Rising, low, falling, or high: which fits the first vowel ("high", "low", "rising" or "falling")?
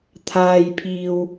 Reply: low